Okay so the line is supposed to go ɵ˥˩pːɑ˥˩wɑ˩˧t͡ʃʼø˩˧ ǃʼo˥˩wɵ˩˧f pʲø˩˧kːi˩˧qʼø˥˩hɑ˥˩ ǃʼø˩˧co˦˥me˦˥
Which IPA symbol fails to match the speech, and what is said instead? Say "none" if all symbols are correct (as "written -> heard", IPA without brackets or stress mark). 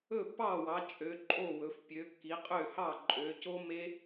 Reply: none